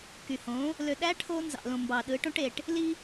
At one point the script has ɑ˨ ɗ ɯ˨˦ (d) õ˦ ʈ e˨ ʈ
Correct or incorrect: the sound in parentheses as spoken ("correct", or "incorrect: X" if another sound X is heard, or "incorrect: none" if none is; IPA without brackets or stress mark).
incorrect: ʈ